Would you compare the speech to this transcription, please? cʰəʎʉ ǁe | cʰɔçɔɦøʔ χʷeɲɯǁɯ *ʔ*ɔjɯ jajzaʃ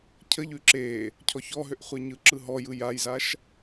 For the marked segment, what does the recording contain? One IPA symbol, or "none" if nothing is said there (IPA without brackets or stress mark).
ɦ